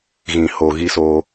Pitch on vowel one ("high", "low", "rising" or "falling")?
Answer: low